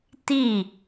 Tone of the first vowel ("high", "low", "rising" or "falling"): falling